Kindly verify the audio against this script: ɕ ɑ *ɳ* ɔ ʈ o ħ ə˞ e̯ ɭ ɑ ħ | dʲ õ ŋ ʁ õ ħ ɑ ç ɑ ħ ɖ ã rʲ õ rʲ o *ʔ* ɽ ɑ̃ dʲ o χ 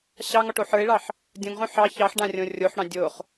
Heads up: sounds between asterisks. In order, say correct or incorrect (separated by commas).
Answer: incorrect, incorrect